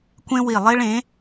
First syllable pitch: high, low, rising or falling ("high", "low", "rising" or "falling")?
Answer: high